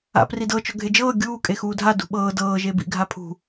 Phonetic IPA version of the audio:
a̰ p r i d ɤ t͡ʃ ɔ ɡʱ e d͡ʒ ɤː ɡʲ uː kʼ e x uː dʱ a d ṳ ɓ ɤː d ɤː ʒ e b ḭ ɡʱ a pʰ ṳ

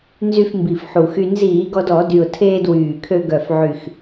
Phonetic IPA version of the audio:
n z y˧ f m b i˨˩ f ħ u˨˩ x y˧ n z iː˧˩˧ ɡ ɔ˧ d ɔ˧˩˧ d y˨˩ ʊ̯ tʰ eː˧ d w yː˨˩ kʰ ø˧ ɡ œ˨˩ f ʕ y˨˩ x

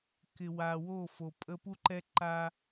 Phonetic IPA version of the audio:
k ɪ˨ w a˨ w o˦˨ f o˨ pʼ ə˦ p u˦ ǃ ɛ˦ ǃ a˦

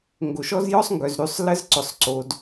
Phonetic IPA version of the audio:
ŋ ɡ o˨ ʃ ɔ˦ z j ɔ˦ sˤ ŋ ɡ œ˨ z ɾ ʉ˨ sˤ l ə˦ z ǀ ʊ˨ sˤ ǀ o˨ d

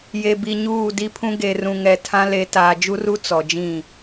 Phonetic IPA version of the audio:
j e˨ b i˨ ɲ uː˦˨ d i˦ pʰ ũ˦ ɡ e˨ r ũ˨ ŋ ɛ˨ tʰ ã˦ l e˨˦ t aː˨ d͡ʒ u˦ r u˦ t͡s ɔ˨ d͡ʒ ĩ˦˨

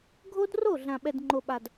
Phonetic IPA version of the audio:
ɡʱ o˦ d r o˦˨ ɮ ã˨ ɓ ɛ˨ d ŋ͡ǃ o˨ ɓ a˨ d

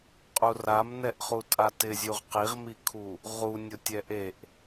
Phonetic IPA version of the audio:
qʼ u r a m n ɛ ʔ χ u tʼ a t ɪ zʲ u ʁ q i ʁ m i kʰ u | ʁ u nʲ ʊ tʲ ɛ ʔ e ʔ

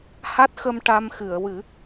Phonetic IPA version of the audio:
h a˦˥ t̚ x ə˧ m ʈ a˧ m x ɨ˨˩˨ ə̯ w ɨ˨˩˦

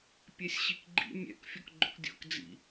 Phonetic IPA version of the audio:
pʲ ɛ sʲ ɕ i k ɡ͡ǃ ḭ mʲ ɛ̰ k fʲ ɔ k ɡ͡ǃ ʊ k dʲ ɔ̰ k d͡z ḭ

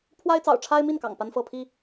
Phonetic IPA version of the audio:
pʰ w a˦ ɪ̯ t͡s ɑ̰˨˩ ʊ̯ ʈ͡ʂʰ a˦ ɪ̯ m i˥˨ n k ɑ̰˨˩ ŋ p a˦ n f ɤ˥˨ pʰ i˥˨

